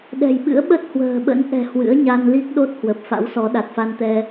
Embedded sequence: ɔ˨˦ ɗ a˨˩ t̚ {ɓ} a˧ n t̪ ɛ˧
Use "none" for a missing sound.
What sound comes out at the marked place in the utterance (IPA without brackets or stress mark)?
f